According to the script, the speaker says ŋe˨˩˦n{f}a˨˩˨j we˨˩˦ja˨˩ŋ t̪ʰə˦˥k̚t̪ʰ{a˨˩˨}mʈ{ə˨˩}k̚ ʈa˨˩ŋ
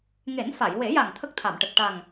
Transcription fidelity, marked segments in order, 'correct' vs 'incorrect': correct, correct, correct

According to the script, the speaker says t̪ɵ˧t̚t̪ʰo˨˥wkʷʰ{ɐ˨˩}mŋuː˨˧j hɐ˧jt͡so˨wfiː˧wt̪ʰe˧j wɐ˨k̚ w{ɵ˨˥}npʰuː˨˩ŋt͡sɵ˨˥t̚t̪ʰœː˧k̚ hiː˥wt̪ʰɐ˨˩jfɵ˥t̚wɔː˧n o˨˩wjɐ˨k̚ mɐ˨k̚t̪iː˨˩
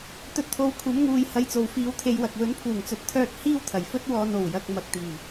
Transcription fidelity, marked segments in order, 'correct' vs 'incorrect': incorrect: ɐ˨˥, correct

